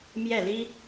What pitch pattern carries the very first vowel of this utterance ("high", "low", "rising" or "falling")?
falling